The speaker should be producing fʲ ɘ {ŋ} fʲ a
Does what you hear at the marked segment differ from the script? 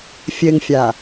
no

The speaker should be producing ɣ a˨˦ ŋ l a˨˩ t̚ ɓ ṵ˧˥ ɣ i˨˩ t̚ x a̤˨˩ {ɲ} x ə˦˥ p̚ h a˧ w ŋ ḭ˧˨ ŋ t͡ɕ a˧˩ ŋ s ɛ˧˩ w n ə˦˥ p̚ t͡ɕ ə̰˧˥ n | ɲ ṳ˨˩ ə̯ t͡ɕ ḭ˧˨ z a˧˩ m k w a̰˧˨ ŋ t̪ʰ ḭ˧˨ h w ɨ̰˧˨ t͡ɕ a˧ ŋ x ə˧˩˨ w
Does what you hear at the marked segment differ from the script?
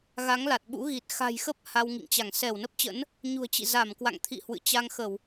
yes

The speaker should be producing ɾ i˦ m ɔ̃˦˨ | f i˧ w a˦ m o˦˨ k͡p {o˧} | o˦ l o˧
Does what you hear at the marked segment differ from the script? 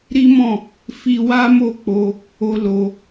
no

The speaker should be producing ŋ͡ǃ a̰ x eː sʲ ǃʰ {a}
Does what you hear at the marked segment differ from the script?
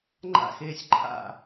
yes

